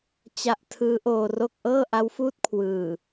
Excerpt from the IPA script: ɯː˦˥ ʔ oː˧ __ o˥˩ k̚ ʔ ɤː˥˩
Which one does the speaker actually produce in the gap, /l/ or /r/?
r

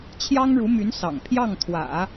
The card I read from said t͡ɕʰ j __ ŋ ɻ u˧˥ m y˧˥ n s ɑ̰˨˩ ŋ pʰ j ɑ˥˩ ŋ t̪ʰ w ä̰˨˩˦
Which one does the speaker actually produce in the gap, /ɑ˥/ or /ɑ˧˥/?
ɑ˥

